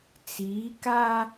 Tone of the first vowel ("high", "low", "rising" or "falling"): rising